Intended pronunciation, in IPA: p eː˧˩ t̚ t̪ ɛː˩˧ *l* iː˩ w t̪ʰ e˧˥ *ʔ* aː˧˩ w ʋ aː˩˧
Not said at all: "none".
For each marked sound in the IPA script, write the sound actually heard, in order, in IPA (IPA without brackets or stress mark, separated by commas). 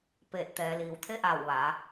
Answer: l, ʔ